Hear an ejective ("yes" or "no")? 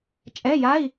yes